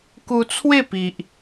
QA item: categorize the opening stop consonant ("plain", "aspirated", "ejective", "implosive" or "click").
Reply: plain